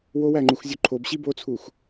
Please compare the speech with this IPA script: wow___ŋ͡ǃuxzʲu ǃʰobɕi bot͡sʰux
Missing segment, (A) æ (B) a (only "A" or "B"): A